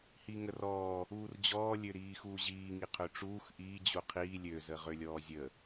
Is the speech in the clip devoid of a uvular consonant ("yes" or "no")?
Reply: no